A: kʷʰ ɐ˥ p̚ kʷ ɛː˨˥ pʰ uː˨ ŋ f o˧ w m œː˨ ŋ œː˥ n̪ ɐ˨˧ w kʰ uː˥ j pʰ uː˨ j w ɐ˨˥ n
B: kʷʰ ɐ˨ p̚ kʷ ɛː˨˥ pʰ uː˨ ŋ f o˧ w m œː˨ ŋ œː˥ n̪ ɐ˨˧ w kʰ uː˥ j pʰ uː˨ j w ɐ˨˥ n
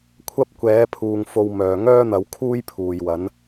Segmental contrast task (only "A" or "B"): A